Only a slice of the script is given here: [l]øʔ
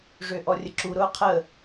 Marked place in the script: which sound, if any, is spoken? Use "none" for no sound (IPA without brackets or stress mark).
ʐ